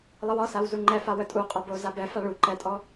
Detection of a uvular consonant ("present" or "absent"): present